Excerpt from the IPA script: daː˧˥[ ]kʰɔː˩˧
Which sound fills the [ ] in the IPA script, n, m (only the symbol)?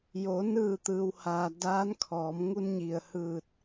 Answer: n